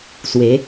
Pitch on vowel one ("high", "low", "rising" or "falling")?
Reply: rising